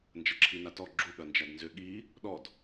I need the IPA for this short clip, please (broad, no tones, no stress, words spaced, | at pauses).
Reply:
nd͡ʒɐǁʰinatɔ ɡ͡ǁu ɠɐnd͡ʒadnzʏ ɠi | ɗɔd